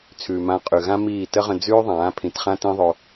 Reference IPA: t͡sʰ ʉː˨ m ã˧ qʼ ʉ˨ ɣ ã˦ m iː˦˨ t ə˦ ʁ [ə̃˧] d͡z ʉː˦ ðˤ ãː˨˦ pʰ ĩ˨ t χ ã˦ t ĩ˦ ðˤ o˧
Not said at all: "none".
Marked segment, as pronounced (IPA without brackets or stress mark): ə̃˧